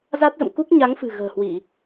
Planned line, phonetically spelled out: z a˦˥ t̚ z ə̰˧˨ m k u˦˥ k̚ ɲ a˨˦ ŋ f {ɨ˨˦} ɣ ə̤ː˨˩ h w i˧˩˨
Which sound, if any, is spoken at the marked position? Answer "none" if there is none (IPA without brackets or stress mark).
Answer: ɨ̤˨˩